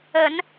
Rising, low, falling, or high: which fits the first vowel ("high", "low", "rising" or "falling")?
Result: rising